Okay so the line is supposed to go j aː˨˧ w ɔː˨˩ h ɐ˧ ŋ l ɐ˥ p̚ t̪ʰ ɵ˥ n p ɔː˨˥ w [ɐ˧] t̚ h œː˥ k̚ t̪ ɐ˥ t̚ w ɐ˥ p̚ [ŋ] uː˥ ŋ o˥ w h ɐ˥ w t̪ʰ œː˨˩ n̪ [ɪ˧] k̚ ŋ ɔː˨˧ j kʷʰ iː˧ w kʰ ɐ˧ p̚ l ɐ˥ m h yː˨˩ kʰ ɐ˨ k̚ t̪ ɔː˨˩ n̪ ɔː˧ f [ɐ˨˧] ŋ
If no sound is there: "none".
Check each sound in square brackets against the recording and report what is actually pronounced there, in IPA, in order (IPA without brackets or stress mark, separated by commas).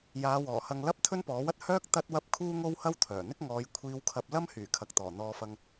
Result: ɐ˥, kʰ, ɪ˥, ɐ˧